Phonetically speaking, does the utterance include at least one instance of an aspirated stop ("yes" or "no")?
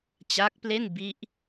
no